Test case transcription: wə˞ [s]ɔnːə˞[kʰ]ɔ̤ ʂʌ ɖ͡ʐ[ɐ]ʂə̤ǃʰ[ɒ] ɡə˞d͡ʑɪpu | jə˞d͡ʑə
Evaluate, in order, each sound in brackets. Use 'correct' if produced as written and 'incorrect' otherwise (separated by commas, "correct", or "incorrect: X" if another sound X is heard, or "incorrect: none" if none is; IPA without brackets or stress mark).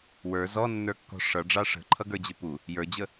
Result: incorrect: z, incorrect: kː, incorrect: ɑ, incorrect: ʌ